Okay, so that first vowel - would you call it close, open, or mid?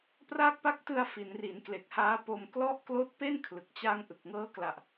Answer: open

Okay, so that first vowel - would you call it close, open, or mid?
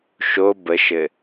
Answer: mid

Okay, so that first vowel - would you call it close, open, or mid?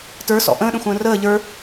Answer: mid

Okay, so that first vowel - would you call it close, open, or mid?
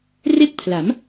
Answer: mid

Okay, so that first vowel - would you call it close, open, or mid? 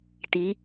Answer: close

